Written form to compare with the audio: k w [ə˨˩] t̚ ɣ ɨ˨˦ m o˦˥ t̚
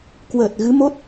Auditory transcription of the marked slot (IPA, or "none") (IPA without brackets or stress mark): əː˨˩